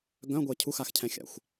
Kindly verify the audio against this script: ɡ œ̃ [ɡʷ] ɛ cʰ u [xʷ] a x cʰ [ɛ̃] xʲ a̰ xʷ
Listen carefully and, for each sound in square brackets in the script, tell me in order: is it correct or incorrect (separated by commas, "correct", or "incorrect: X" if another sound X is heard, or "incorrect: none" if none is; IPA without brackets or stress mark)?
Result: correct, incorrect: x, correct